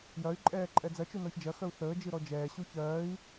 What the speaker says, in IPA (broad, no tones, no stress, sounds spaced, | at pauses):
j ɐ y̯ ǃʼ ɛː ǃʼ ɛ d͡z ɐ t͡ʃ u n ɔ ç d͡ʒ ɐ x œ u̯ θ əː d͡ʒ ɨ ɾ ɔ d͡ʒ ɛː ɕ u ç ɜː i̯